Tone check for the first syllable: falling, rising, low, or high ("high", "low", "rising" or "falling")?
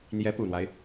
rising